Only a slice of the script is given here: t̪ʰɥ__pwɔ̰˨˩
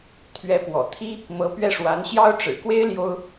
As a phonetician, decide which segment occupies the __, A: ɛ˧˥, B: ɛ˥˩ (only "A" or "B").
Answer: A